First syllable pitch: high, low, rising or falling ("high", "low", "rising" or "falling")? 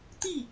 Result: falling